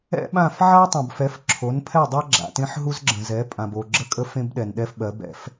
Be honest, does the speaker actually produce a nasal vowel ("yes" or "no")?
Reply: yes